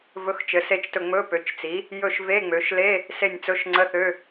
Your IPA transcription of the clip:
v ɵ˧˥˧ x t͡ʃ ɘ˩˥ s e˦˨ t͡ʃ t ɵ˦˨ ŋ͡m ɵ˧˥˧ p ø˩˥ t͡ʃ t͡s i˩˥ | j ɵ˦˨ ʃ v e˧˥˧ ŋ͡m ø˩˥ ʃ l e˧˥˧ | s e˦˨ nʲ t͡s ɵ˧˥˧ ʃ ŋ͡ǀ ə˧˥˧ θ ø˧˥˧

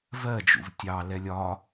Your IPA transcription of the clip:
v ɜ d͡ʒ ṵ v tʲ ɑ l ɛ lʲ ɒ

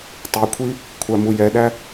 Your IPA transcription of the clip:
tˤ e kʷʰ i | kʷʰ æ m u j ɛ ɗ æ

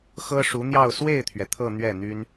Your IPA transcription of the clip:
x ɤ˥ ʂ u˧˥ n̪ j ɑ˥˧ ʊ̯ s w e˥˩ ɪ̯ t̪ʰ ɥ ɛ˩ t̪ʰ ɤ˥˧ n̪ ɥ ɛ˥˩ n̪ y˥ n

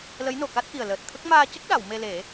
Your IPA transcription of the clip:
l ə˧˥ j n o˨˩ k a˦˥ t̚ ʔ i˨˩ ə̯ l əː˨˩ t̚ t̪ʰ ə˦˥ k̚ m aː˧ c ə˦˥ k̚ ɗ a˨˩˨ w m e˧ l e˨˩˦

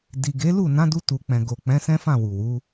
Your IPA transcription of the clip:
d i˨ ɡ e˨˦ l u˦˨ n ã˨˦ d u˧ t u˨ k͡p ɛ̃˨ ɡ o˨ k͡p ɛ̃˨˦ s ɛ̃˦ f ã˦˨ w u˨ w u˨˦

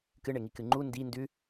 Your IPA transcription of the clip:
k ɨ ɳ e ŋ i k ɨ ŋ͡ǃ u n d i n d ʉ

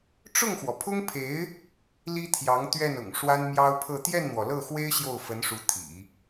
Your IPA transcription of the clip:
ʈ͡ʂ ʊ˥˩ ŋ x w ɔ˩ pʰ ʊ˥ ŋ pʰ e˧˥ ɪ̯ | l i˥ t̪ʰ j ɑ˧˥ ŋ t̪ ɥ ɛ˥˩ n ʊ̰˨˩ ŋ ʂ w a˥ n m j ɑ˥ ʊ̯ pʰ ɤ˥˧ t̪ j ɛ˥˩ n n̪ w ɔ˩ l ɤ˥˩ x w e˥ ɪ̯ ɕ j o˥˩ ʊ̯ f ə˧˥ n ʂ u˧˥ t̪ʰ ḭ˨˩˦

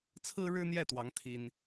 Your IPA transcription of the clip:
t͡sʰ ɹ̩˥ ɻ ɻ̩˥ n̪ j ɛ˥˩ t̪ w ɑ˧˥ ŋ t̪ʰ i˥ n

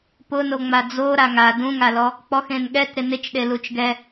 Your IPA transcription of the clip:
p ʊ n o ŋ͡m a d͡z o ɾ a ŋ a d ũ ŋ a l ɔ | k͡p ɔ x ẽ n ɠ ɛ t ɾ ɪ n ɪ t͡ʃ ɗ e l u t͡ʃ ɡ ɛ

